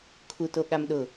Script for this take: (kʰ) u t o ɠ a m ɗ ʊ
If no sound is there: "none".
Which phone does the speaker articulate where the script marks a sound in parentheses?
kʰ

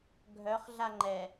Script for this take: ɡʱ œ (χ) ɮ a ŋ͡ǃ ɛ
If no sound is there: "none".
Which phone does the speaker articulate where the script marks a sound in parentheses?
χ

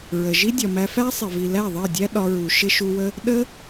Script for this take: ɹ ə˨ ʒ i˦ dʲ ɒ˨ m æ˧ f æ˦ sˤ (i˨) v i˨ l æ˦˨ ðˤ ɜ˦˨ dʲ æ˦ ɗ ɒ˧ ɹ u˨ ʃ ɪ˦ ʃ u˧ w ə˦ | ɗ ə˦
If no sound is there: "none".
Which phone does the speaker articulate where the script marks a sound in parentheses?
ɪ˨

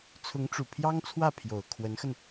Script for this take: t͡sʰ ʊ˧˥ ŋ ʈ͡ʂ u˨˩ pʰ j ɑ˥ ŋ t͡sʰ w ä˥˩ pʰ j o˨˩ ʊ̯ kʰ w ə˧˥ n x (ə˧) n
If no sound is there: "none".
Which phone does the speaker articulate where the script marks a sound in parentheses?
ə˧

